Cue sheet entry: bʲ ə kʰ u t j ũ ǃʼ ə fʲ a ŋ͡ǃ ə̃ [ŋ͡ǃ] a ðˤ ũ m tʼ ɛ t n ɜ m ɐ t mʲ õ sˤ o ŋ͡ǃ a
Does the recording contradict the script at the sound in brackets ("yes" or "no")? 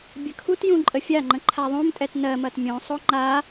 yes